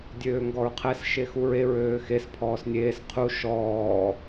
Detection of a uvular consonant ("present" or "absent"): present